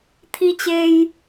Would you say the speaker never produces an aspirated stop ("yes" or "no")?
no